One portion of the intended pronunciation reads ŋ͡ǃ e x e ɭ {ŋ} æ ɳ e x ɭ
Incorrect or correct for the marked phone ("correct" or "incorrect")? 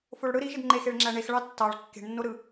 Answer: incorrect